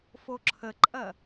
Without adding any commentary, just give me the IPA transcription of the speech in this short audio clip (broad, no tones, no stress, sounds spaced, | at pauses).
f o ǁʰ ə ǃʼ ɐ